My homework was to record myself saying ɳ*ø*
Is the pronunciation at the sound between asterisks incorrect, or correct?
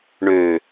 correct